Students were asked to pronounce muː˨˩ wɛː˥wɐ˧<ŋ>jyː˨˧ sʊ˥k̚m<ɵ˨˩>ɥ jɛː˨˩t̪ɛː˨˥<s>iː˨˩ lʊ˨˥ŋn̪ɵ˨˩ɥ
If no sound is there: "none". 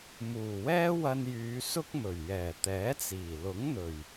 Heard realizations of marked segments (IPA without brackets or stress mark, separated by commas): n, ɵ˨˩, t͡s